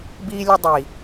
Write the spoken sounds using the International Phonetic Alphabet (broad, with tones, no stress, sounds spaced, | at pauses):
b iː˥ lʲ ə˥ dˤ iː˨˩